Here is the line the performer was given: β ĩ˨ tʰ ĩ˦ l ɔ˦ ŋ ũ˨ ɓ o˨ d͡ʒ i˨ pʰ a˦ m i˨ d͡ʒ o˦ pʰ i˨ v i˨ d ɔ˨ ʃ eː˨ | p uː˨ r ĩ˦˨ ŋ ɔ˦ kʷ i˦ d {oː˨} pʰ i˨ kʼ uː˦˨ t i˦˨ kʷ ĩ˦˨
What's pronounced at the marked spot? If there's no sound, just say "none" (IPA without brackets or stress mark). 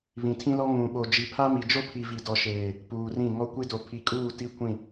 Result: o˨